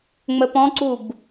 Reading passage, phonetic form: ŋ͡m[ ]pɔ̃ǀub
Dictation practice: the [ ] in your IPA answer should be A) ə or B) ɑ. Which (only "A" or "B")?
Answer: A